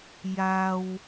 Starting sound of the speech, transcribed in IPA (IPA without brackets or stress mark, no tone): j